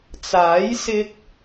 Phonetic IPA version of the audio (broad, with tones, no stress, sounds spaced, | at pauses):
t͡s aː˨˥ j s ɪ˧ k̚